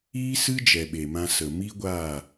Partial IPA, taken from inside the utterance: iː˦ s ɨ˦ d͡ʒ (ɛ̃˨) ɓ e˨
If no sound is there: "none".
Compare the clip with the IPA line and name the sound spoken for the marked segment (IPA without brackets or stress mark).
ɛ˨